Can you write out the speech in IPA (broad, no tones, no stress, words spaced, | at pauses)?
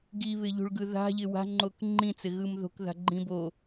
ɡiβɪʎṳɭɡɯ ða̤ʎɪ wa̤ŋ͡ǃok ŋ͡ǃĩt͡sɪɣɯm ðo̤kða̤ɡ͡ǃĩ bo